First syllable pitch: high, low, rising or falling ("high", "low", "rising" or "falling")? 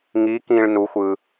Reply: rising